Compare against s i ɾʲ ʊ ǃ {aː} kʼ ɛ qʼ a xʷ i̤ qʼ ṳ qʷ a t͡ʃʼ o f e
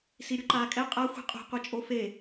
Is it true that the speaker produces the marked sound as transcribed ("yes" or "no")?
yes